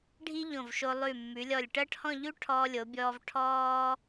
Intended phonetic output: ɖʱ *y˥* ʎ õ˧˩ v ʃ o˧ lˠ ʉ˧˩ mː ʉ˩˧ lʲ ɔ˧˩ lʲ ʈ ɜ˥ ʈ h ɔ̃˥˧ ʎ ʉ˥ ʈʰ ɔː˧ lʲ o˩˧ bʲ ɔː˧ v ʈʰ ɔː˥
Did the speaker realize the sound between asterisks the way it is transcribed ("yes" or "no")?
no